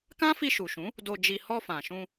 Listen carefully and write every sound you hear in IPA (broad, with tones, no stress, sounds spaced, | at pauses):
k ã˦ f i˧ ʃ u˨ ʃ ũ˨˦ | d o˧ d͡ʒ i˧ h ɔ˧ f ã˨ ʃ ũ˧